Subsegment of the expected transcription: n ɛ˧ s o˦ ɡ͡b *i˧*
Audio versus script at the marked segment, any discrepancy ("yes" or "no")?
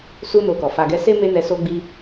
yes